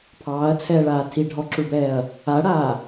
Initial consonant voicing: voiceless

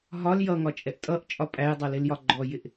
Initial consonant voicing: voiced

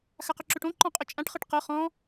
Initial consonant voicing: voiceless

